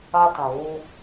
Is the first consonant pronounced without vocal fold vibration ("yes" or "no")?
yes